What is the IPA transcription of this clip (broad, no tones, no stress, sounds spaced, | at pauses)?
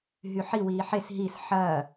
ɦ y ħ i w iː ħ e s ɦ i s ħ ɐː